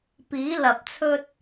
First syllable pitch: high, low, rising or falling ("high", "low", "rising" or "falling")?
rising